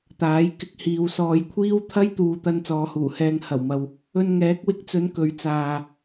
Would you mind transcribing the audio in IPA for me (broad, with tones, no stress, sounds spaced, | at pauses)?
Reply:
t̪ aː˨˥ j k ɪ˧ k̚ h iː˨ w s ɔː˨ j kʷʰ iː˥ w t̪ʰ ɐ˥ j t̪ uː˨˧ t̪ ɐ˧ n t͡s ɔː˨˧ h uː˨˩ h ɛː˧ ŋ h ɐ˨˩ w m ɐ˨ w | ɵ˧ n ŋ ɛː˨˥ k̚ w ɪ˧ k̚ t͡s ɵ˨˧ n k ɵ˨˥ ɥ t͡s aː˨